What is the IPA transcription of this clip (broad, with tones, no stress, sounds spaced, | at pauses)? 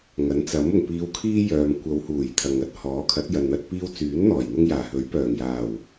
ŋ ɐ˨˥ n t͡s ɐ˨˥ m ʊ˨˩ ŋ p iː˨˧ w kʰ iː˥ j œː˨ m kʷ ɐ˨˧ w h uː˨˩ j t̪ʰ ɐ˨ ŋ ɐ˥ t̚ h ɔː˨˥ kʰ ɐ˨˥ t̚ j ɐ˨ n n̪ ɐ˧ t̚ p iː˧ w t͡s yː˨˥ n n̪ ɔː˨˩ j n̪ ʊ˧ ŋ j aː˨˩ h ɵ˨˥ ɥ p œː˨˩ ŋ j aː˨˩ w